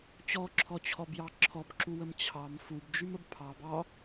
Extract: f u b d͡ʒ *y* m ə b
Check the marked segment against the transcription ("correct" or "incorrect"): correct